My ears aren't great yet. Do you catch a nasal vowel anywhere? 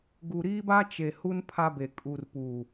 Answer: no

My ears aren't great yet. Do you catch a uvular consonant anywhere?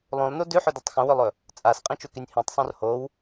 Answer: yes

